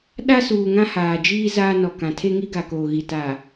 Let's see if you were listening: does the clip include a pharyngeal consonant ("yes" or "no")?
no